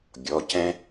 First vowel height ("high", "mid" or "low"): mid